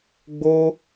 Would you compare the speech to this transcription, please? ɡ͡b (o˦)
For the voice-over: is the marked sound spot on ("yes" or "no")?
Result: yes